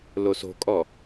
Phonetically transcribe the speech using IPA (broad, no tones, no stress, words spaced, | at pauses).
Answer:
loso̤kʼɔ